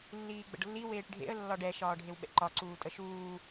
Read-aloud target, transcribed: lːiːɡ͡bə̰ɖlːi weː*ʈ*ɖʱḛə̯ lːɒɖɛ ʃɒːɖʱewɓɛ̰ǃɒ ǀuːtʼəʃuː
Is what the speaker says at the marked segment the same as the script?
yes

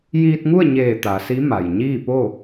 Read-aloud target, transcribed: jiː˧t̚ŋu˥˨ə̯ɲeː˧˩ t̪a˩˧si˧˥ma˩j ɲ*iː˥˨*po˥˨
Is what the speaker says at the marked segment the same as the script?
yes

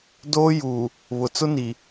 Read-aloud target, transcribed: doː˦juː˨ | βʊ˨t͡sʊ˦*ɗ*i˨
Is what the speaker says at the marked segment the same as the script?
no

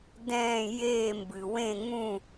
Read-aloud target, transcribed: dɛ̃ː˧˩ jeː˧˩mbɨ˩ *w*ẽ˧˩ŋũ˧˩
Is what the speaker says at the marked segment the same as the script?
yes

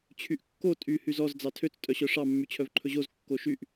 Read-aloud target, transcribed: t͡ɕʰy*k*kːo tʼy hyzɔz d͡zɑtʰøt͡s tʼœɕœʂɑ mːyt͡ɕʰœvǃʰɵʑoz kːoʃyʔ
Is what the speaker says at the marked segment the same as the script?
no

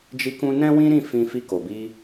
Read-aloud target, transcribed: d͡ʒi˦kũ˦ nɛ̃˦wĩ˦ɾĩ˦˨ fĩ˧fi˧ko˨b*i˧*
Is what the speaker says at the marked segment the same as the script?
yes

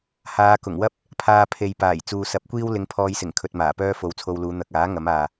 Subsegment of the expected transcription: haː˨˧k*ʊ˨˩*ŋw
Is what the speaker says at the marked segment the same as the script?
yes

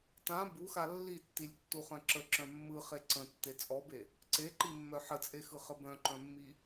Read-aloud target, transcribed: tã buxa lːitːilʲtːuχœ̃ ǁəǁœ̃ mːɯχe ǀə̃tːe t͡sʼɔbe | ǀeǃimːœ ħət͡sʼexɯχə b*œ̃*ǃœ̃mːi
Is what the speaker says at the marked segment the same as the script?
yes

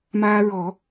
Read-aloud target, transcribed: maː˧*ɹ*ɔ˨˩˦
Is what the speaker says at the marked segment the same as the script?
yes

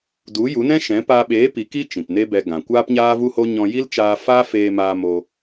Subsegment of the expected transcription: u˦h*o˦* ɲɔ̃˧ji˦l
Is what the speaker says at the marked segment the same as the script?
yes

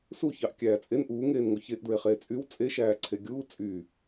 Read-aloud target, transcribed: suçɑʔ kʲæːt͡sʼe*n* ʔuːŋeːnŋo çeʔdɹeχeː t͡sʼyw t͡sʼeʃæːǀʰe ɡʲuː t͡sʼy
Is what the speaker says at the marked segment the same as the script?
yes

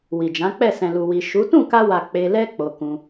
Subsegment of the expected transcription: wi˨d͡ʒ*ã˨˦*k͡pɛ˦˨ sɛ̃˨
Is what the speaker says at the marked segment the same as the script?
yes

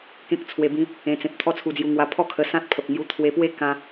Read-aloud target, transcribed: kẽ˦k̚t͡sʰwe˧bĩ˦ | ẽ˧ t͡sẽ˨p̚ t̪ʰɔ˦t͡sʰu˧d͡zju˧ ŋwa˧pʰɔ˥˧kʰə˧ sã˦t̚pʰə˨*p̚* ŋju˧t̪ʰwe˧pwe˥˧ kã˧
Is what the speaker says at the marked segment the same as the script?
yes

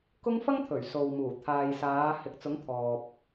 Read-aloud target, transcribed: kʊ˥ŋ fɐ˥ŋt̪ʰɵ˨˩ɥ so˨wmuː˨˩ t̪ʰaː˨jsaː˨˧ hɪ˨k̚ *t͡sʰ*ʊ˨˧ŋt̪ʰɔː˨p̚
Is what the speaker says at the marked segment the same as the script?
no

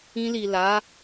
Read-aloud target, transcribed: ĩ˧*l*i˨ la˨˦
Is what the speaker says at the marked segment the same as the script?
yes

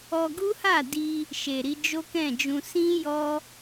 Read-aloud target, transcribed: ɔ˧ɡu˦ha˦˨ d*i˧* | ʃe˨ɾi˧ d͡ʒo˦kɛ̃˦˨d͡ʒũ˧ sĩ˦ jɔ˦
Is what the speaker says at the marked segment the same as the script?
yes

